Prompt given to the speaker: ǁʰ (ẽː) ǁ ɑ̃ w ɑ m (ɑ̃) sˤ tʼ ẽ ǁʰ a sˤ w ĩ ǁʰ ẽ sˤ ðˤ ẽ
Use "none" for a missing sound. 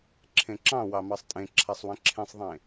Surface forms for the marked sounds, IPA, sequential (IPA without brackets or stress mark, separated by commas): ẽ, ɑ